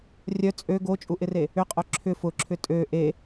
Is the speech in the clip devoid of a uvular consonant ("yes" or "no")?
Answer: no